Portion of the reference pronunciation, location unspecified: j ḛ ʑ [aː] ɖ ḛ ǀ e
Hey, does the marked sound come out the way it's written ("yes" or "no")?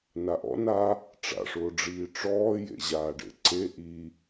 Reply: yes